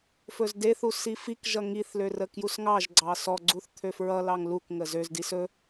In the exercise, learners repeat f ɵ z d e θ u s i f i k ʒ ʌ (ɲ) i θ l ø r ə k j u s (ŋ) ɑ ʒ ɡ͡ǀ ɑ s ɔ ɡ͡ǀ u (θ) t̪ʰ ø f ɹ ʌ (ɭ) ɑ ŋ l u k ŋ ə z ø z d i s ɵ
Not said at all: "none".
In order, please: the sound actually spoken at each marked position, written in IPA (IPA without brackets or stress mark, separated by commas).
ŋ, ŋ, θ, l